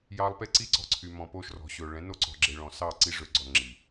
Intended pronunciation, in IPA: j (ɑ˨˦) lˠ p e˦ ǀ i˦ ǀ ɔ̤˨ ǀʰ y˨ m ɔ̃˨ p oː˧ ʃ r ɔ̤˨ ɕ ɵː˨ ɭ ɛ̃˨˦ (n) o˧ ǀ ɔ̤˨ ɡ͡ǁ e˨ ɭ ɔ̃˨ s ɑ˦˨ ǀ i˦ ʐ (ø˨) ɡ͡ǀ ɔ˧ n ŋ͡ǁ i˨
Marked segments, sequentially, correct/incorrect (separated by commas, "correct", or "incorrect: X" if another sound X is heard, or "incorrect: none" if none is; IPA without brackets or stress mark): incorrect: ɑ˧, correct, correct